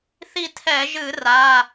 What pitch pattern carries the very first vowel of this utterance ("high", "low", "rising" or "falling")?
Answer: falling